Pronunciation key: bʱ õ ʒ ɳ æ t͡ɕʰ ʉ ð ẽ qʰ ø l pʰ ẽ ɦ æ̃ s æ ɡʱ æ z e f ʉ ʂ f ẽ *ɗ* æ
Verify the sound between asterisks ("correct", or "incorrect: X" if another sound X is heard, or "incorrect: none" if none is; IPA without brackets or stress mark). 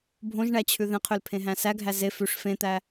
incorrect: t̪